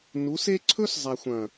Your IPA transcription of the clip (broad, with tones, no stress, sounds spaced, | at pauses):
n u˨˦ s e˦ ǀʰ ɵ˦ s zˤ a˨ xʷ ɐ̃˨